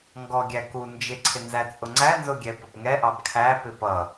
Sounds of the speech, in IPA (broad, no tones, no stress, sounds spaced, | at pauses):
ŋ ɡ ɔ ɡʲ æ k u n d͡ʒ ɪ ǀʰ ɪ n z æ t͡sʼ ʊ ŋ͡ǀ æ n z ʊ ɡʲ ɛ p ə p ŋ ɛ ʔ ɑ b kʰ æ p ɪ p ʌ